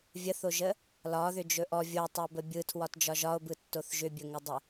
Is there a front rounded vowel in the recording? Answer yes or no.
yes